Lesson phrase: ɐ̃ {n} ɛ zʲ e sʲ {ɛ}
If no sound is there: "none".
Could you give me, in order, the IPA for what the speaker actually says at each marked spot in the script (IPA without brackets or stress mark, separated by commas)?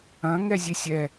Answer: ŋ, ɛ